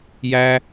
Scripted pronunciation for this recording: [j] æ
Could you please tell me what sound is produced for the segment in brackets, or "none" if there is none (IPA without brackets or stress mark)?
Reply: j